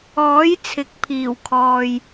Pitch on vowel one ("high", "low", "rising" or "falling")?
rising